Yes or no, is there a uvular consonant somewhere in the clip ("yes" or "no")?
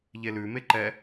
no